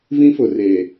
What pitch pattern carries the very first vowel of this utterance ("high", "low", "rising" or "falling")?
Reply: high